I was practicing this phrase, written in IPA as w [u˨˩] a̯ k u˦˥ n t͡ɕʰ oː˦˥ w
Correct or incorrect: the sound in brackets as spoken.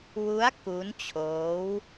incorrect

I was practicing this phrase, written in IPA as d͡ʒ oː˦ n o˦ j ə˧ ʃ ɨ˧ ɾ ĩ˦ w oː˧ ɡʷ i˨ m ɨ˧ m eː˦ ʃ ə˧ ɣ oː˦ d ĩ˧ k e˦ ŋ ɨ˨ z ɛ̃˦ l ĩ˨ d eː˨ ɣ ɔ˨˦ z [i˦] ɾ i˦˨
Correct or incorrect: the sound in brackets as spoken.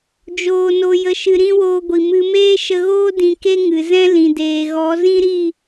incorrect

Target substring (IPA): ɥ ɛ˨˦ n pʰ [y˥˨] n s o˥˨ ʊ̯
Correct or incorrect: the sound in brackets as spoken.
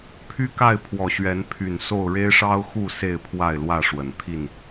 incorrect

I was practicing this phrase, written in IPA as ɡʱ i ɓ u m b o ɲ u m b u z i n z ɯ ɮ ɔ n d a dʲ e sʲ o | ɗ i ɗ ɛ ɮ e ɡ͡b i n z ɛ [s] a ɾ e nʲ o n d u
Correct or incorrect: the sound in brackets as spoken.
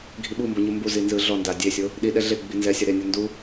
incorrect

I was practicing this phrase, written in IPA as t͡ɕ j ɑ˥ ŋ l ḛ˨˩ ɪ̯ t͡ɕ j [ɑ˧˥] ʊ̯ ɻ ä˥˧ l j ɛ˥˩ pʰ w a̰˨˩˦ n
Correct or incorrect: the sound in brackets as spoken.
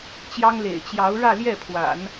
correct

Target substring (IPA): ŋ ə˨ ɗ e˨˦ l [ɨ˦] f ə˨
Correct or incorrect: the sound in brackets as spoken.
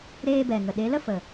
incorrect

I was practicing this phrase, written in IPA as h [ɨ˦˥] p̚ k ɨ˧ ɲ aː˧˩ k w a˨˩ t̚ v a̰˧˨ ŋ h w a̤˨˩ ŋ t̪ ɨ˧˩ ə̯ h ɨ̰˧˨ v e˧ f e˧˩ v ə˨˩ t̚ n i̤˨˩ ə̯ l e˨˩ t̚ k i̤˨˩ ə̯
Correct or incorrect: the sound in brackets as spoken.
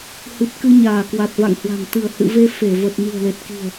incorrect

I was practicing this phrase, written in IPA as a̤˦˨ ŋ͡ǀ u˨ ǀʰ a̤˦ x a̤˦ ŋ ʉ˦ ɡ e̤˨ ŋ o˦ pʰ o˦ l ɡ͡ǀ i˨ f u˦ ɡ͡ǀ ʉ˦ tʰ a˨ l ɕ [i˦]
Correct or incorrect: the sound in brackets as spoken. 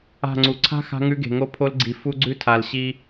correct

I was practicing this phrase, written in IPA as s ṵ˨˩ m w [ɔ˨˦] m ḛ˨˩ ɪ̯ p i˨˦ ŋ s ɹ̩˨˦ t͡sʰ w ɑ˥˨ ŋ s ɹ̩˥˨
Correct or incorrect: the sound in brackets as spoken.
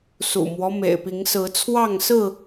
incorrect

